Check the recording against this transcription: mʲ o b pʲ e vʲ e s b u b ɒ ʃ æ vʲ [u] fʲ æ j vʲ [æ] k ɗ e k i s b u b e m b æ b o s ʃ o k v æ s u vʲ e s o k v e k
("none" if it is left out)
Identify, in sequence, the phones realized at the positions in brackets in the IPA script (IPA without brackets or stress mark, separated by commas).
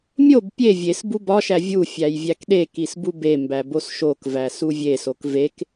u, æ